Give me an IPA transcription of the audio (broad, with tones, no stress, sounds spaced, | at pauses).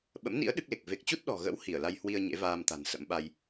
ɓ ə̰˧˥ m n ḭ˧˥ ə̯ ɗ ɨ˦˥ k̚ l e˨˩ k̚ v e˨˩ k̚ t͡ɕ u˦˥ t̚ ɗ ɔ̤˨˩ ɣ ə̰˧˥ w h i˧˩ ə̯ l a˧ j h w i˧ ə̯ ɲ ḛ˧˥ v aː˧ m t̪ a̤˨˩ n s ə̰˧˥ m ɓ a˧ j